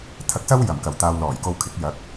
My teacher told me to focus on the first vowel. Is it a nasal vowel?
no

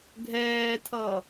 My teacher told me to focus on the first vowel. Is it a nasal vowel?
no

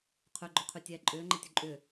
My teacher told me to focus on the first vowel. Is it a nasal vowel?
no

